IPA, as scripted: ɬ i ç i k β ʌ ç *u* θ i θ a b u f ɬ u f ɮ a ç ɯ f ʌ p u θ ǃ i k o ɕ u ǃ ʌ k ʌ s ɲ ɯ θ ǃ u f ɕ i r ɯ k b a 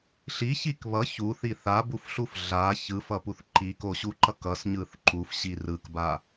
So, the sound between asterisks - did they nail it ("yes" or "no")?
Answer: yes